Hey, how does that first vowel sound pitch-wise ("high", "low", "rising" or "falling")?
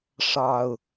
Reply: low